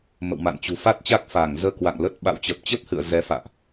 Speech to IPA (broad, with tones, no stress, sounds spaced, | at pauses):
m ə̰˧˨ w m a̰˧˨ n t͡ɕ ṳ˨˩ f a˦˥ t̚ t͡ɕ a˦˥ k̚ f aː˧˩ ŋ z əː˧ k w a̰˧˨ ŋ l ə˦˥ t̚ ɓ a̰˧˨ w t͡ɕ ə˨˩ p̚ t͡ɕ ə˦˥ p̚ h ɨ̰˧˨ ə̯ z ɛ˨˦ f a̰ː˧˨ ʔ